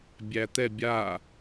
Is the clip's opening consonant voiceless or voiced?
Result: voiced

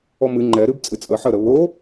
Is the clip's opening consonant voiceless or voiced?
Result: voiced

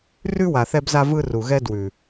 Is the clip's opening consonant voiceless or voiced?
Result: voiced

